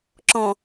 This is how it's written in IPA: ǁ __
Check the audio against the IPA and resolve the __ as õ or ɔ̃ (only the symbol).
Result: ɔ̃